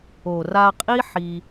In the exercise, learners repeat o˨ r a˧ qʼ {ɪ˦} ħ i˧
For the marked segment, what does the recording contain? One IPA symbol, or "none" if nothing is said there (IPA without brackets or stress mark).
i˦